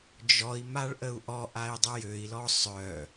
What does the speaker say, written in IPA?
d͡ʒɔi̯ maɭʔəu̯ʔɔʔai̯ dˤəjøi̯lɔ sˤœ

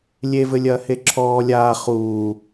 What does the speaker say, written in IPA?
lʲevɘlʲɐː heǁʰɔː lʲaː χuː

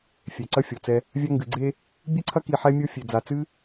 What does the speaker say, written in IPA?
fʲɛ˨ǀɐ˦fʲɔ˨t͡sɛ˧ | vʲa˧ŋɡɨ˨ɡ͡ǀe˧ | bʲɨ˦ǀʰɐ˦ ki˧ħɛ˦mʲo˦ fʲe˨d͡za˨t͡sɨ˦

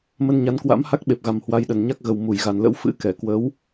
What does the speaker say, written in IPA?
mə˧nɲa˨˦nkwa̰˧˥m ha˦˥k̚ɓe˨˩p̚ɣa˨˩m hwa˧jɗə˨˩nɲa˦˥k̚ ɣə˨˩wmu˧˩j ɣa˨˩nlə̰˧˥w fɨ̰˧˥kɛ˧˩ kwə˨˦w

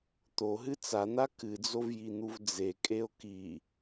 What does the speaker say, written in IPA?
t̪oɦɨ t͡san̪a kɨd͡zovjin̪uv d͡zekʼeo̯ ki

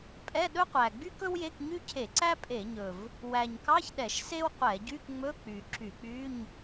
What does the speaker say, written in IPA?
pʼɛ˧˥˧ɗɵ˥qʷæ˨˩ ɡ͡by˥kɵ˥wje˧˥˧k ɲy˥cʰe˧˩˧ǀæ˥ pʼe˧˩˧ɲɵ˨˩v | wæ˨˩ɲkɑ˧˥˧çɗɛ˧˩˧ʃ se˥wqʷɛ˧˩˧ɟy˧˥˧kŋ͡mɵ˧˥˧ k͡py˨˩ǁy˧˩˧k͡py˧˥˧ɲ

